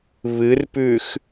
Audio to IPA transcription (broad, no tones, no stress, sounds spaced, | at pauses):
β ɨ r p ʉ x